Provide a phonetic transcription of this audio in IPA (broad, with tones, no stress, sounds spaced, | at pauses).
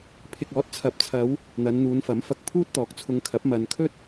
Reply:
pʰ ɪ˨ k̚ ɔː˨˥ t̚ t͡sʰ ɐ˨˥ p̚ t͡sʰ ɐ˨˧ w | n̪ ɐ˨˧ n n̪ uː˨˧ n f ɐ˨˥ m f ɐ˧ k̚ pʰ uː˥ t̚ t̪ ɔː˨˥ k̚ t͡sʰ ʊ˧ ŋ kʰ ɐ˨˥ p̚ m ɐ˨ n kʰ ɵ˥ t̚